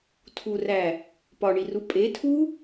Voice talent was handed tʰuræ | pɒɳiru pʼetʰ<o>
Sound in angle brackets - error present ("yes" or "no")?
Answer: yes